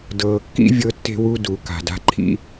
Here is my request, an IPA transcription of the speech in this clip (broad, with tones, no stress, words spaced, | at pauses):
dɤː˩kːḭ˥ vʲɤ˥tːe̤˥wu˥du˩ ka̤˩da̤˥ǃʰḭ˥